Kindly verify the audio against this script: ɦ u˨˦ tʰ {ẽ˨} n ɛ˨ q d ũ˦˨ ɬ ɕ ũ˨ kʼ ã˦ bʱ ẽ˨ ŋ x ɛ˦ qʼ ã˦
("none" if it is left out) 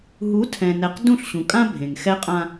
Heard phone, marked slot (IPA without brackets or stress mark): ɛ̃˨